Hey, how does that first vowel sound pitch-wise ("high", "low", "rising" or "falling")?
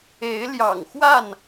rising